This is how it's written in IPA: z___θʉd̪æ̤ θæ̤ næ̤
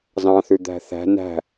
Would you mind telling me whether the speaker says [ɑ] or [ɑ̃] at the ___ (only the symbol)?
ɑ̃